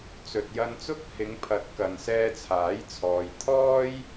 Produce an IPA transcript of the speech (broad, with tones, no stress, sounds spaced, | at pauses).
t͡s ɵ˨ t̚ j ɐ˧ n t͡s ʊ˥ k̚ h ɪ˨˧ ŋ pʰ ɐ˨˥ t̚ k ɐ˨ n s ɛː˧ t͡sʰ aː˨˥ j t͡sʰ ɔː˨ j t̪ʰ ɔː˥ j